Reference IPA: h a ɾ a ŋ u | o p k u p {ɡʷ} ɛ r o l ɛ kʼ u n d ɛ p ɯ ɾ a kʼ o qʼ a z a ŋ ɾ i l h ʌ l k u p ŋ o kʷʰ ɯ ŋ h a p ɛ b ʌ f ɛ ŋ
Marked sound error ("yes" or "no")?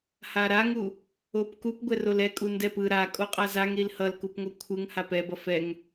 no